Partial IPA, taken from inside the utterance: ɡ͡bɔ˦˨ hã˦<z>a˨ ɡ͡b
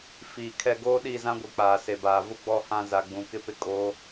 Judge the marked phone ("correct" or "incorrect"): correct